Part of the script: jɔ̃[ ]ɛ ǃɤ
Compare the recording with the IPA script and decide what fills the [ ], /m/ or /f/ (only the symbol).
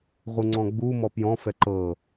f